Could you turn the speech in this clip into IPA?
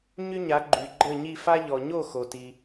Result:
ɲ y˥ ɲ a˩˥ ɡ͡ǃ y˩ ɡ͡ǃ ə˥˩ ɲ i˥˩ f a˥ ʎ ɔ˩ ɲ o˥˩ x o˩ t i˩

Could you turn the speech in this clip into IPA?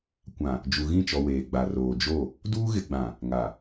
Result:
kʷ ã˨ | d͡ʒ u˨ ɣ ĩ˦˨ t͡ʃ ɔ˨ w eː˨ ɡ͡b a˨ r oː˨ d͡ʒ o˦˨ | d uː˦ ɣ ɪ˨ ɡ͡b ã˨ | ŋ a˨

